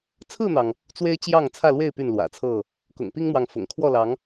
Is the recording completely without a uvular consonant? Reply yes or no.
yes